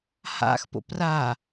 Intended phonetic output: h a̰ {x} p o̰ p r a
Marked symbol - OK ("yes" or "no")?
yes